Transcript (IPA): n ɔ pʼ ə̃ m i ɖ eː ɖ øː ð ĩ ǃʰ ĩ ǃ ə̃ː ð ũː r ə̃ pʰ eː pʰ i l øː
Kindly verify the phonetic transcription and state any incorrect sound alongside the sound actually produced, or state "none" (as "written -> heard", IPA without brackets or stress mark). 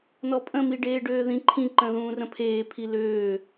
none